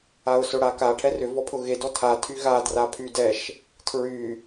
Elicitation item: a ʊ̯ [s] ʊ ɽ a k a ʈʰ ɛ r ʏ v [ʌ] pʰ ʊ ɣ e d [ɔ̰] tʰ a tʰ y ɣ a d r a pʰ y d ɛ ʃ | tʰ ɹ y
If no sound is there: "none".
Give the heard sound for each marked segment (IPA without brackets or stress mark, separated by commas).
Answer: s, ɔ, ɔ